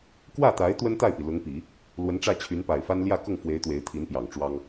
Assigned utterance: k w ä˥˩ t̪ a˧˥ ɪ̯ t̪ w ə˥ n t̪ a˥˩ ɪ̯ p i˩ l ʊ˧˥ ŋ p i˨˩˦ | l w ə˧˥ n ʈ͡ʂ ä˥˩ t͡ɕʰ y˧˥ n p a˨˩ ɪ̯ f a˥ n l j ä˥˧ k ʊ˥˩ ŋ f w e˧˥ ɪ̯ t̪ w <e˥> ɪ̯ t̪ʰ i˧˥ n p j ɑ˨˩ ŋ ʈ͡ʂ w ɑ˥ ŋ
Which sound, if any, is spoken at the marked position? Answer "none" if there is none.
e˧˥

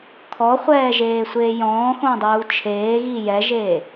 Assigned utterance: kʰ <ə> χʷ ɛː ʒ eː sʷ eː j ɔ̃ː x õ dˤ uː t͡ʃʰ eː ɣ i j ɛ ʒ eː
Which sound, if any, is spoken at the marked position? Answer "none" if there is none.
ɔ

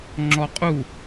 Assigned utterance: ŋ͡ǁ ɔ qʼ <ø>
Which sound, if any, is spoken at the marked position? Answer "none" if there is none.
u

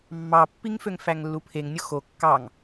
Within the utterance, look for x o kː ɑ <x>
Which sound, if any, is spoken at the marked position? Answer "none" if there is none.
ŋ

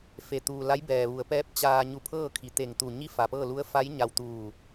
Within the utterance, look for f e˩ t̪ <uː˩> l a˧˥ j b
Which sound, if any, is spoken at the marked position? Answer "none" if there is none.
uː˩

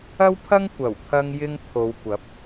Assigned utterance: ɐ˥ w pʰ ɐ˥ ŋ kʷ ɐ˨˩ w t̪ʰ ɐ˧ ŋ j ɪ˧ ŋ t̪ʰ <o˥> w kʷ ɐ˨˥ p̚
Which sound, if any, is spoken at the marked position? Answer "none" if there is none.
o˨˧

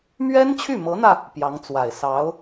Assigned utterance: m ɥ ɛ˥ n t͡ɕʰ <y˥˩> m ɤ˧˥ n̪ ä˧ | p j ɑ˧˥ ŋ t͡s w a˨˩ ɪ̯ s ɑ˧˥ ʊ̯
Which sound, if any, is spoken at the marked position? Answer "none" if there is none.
y˥˩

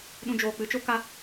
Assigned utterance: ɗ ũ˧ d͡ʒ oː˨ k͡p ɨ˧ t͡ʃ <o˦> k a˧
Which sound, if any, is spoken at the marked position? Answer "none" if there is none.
o˦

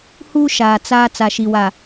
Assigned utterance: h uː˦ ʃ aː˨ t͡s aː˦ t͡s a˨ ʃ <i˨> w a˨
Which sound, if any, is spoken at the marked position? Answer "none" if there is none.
i˨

